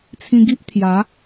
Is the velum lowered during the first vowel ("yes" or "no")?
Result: yes